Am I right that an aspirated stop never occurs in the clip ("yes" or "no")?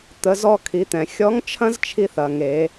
no